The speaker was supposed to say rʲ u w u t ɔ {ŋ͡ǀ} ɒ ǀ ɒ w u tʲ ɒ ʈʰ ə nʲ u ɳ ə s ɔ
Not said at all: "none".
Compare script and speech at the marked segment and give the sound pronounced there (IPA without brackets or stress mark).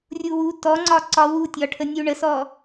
ŋ͡ǀ